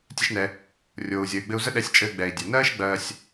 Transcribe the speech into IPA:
tʲ ɛ˧ ʃ n ɛ˩ | rʲ oː˩ u̯ zʲ əː˩ y̯ ɡ͡b ɘ˧ u̯ z ə˥ ɗ ɛ˧ sʲ t͡ʃʼ ɘː˧ ɡ͡b ɛ˩ i̯ dʲ æ˩ n ɜː˥ ʃ ɡ͡b ɜː˧ sʲ

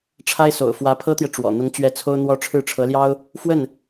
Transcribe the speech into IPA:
ʈ͡ʂʰ a˥ ɪ̯ s o̰˨˩ ʊ̯ f w ä˧˥ pʰ ɤ˥ t̪ j ɛ˨ ʈ͡ʂ w ɔ̰˨˩ n̪ ʊ˧˥ ŋ t͡ɕ ɥ ɛ˧˥ t͡sʰ o˥ ʊ̯ n̪ w ɔ˥ ʈ͡ʂʰ ɻ̩˥˩ ʈ͡ʂʰ ɤ˧˥ l j ɑ˥ ʊ̯ | f w ə˥˩ n

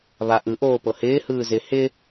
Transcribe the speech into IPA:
β a ʔ ɯ ʔ oː p ɤ h ɪː h ɯː z ɪ h ɪ

